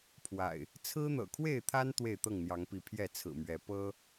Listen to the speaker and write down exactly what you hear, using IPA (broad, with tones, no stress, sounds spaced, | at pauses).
pʰ w a̰˨˩ ɪ̯ | t͡sʰ ɹ̩˦ n̪ ɤ̰˨˩ kʰ w e˥˨ ɪ̯ t̪ʰ a˦ n t̪ w e˥˨ ɪ̯ t̪ ɤ˥˨ ŋ n̪ j ɑ˨˦ ŋ p i˨˦ pʰ j ɛ˥˨ t͡sʰ ɹ̩˨˩ m ɥ ɛ˨˦ p ɤ˦